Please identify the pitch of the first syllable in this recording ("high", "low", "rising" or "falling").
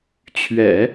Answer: low